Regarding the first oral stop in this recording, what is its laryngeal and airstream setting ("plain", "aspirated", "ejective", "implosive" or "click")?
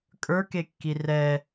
ejective